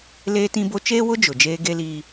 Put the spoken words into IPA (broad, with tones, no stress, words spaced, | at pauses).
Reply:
leː˦tĩ˦bo˦ t͡ʃeː˦wʊ˦ d͡ʒʊ˨d͡ʒeː˦ɡe˦liː˦